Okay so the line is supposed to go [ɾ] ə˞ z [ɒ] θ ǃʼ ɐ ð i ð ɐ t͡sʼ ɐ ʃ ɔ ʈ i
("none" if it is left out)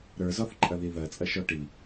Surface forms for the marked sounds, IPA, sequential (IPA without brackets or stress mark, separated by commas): ɾ, ɒ